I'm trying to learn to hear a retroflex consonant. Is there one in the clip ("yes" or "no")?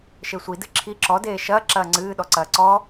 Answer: no